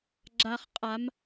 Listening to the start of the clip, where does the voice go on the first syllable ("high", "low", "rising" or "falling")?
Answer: low